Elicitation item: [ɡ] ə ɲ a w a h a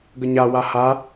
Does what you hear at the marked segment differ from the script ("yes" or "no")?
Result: no